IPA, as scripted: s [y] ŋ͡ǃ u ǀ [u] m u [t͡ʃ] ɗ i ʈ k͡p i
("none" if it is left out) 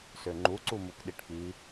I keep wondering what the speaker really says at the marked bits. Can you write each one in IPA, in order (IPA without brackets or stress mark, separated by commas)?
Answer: ø, u, k